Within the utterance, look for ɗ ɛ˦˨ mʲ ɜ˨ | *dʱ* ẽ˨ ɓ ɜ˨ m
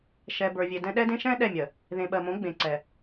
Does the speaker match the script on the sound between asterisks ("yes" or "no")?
no